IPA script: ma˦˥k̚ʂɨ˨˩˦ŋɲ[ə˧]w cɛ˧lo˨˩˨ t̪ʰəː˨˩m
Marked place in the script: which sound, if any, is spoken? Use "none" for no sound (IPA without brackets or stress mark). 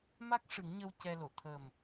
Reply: ə˧